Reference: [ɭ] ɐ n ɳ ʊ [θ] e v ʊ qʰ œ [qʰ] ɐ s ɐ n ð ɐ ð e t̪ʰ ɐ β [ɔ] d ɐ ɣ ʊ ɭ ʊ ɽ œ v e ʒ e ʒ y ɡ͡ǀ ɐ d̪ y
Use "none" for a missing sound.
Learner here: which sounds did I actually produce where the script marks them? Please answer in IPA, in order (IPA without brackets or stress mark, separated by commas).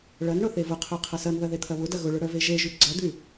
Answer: ɭ, θ, qʰ, ʊ